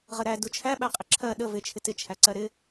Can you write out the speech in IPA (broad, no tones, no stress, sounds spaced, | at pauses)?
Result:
ʁ ə ɾ æ d u t͡ʃʰ æ ɓ æ qʼ ɪ ǁʰ ɜ ɗ ə v ɪ t͡ʃʰ ɪ t ɪ t͡ʃʰ æ ǀ ɜ ɾ ɪ